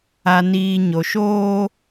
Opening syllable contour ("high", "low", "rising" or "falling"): low